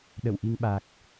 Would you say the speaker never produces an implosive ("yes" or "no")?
no